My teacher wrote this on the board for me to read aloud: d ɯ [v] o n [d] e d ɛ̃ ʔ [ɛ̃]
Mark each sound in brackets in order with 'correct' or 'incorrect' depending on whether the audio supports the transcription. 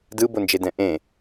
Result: incorrect: b, incorrect: d͡ʒ, incorrect: ẽ

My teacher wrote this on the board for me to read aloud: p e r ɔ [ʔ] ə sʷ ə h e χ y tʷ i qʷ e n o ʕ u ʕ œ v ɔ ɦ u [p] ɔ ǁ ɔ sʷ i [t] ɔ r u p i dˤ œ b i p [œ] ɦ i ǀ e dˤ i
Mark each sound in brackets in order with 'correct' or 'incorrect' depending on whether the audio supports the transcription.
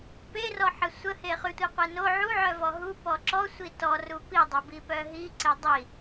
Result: incorrect: ħ, correct, correct, correct

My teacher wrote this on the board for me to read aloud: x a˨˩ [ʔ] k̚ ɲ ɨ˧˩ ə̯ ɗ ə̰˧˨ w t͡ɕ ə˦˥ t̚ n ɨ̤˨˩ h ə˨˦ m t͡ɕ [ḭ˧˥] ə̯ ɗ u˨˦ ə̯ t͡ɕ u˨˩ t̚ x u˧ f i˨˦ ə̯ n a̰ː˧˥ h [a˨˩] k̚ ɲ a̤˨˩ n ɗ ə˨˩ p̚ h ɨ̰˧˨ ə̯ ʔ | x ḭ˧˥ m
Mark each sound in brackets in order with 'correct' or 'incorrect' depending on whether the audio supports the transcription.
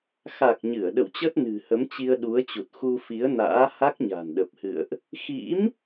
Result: incorrect: none, incorrect: i˧, incorrect: a˦˥

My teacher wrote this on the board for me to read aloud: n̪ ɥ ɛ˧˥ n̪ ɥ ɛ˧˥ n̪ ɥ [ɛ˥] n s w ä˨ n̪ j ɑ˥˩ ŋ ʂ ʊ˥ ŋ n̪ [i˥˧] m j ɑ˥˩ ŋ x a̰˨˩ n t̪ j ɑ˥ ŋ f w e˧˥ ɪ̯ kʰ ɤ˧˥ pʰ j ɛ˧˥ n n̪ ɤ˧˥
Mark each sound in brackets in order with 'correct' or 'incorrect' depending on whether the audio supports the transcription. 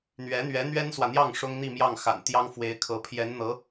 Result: correct, correct

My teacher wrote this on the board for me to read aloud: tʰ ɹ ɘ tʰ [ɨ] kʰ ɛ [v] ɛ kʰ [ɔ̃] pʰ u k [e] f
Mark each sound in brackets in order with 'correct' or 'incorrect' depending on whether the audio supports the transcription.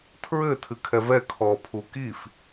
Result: correct, correct, incorrect: ɔ, incorrect: i

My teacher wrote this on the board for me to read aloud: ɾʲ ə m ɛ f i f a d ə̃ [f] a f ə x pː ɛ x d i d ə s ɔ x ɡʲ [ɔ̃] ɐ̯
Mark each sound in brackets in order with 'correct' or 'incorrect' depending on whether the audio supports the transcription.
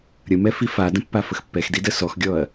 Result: incorrect: pː, incorrect: ɔ

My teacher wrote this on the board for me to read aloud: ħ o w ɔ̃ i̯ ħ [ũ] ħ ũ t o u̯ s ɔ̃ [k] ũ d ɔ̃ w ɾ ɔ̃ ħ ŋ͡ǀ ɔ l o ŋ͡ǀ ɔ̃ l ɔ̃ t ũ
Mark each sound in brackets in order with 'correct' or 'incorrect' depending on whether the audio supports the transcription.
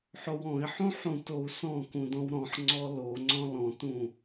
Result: correct, correct

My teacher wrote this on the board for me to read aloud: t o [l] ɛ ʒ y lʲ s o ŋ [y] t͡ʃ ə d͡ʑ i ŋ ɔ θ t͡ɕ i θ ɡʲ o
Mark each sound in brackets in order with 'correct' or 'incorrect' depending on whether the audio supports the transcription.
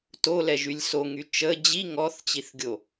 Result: correct, correct

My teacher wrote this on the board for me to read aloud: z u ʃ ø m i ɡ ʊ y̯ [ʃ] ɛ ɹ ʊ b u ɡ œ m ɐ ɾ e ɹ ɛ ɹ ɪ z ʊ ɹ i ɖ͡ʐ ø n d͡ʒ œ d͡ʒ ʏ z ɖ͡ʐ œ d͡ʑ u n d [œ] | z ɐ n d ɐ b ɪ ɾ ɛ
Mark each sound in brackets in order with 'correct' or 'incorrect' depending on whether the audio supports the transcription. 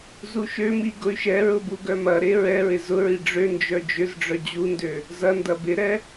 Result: correct, incorrect: ø

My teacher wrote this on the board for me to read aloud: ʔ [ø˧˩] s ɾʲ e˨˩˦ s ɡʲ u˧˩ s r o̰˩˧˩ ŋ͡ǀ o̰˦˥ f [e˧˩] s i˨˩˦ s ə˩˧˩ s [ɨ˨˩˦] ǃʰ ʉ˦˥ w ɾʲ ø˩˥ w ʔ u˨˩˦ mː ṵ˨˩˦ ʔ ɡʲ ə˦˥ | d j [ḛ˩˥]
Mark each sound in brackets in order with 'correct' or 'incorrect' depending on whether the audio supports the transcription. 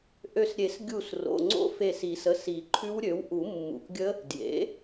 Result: correct, correct, incorrect: i˨˩˦, correct

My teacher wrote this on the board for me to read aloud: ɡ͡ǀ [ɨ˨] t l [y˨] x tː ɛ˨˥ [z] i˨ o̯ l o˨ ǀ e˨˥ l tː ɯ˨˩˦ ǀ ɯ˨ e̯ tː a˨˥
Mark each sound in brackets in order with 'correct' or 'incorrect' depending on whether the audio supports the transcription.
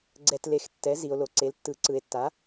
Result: incorrect: ɛ˨, incorrect: e˨, correct

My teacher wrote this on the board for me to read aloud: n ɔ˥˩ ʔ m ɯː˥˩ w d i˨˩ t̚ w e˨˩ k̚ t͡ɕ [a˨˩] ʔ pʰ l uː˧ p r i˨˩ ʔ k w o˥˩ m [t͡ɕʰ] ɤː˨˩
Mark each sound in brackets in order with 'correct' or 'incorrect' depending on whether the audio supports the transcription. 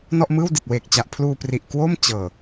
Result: correct, incorrect: t͡ɕ

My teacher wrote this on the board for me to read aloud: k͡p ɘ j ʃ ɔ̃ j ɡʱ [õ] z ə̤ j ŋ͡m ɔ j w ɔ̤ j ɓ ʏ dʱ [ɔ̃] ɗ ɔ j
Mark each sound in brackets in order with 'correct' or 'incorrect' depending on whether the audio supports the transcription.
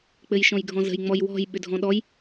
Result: incorrect: ɔ̃, correct

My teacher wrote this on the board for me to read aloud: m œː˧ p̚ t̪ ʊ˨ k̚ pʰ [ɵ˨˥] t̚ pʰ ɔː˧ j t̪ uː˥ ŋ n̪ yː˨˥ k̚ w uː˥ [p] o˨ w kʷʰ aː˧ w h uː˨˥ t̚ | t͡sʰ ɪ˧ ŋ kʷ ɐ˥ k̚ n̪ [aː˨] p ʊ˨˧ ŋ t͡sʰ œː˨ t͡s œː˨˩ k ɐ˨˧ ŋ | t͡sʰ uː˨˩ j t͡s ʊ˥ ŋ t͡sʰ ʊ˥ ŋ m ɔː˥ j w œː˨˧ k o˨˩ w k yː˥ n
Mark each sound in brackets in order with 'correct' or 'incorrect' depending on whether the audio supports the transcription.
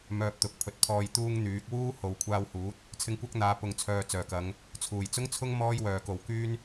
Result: correct, incorrect: h, incorrect: aː˨˧

